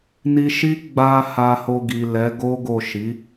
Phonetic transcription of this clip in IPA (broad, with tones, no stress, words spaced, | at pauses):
ni˧ʃi˦ ɡ͡ba˧ ha˧ho˧ɡi˨ lɛ˨˦ɡo˦ɡo˦˨ ʃi˨˦